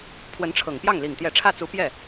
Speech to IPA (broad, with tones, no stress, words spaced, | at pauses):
pʰwə˧˥nʈ͡ʂʰɤ˨˩ŋpjɑ˥˩ŋ li˨˩ŋt̪jɛ˧˥ ʈ͡ʂʰä˥˩t͡su˧˥ pjɛ˥˩